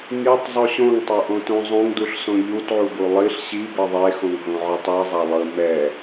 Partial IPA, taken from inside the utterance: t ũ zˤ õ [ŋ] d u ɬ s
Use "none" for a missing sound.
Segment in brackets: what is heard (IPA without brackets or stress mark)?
ŋ